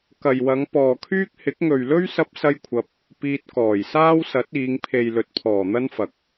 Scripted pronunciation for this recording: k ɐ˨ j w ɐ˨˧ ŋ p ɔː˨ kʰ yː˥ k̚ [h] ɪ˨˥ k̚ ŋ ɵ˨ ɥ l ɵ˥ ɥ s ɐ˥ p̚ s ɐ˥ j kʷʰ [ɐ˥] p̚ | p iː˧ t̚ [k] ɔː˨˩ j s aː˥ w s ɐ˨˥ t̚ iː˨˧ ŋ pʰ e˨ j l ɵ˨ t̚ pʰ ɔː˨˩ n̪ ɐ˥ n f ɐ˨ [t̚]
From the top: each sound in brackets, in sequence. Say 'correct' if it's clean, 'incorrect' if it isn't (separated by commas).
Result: correct, incorrect, correct, incorrect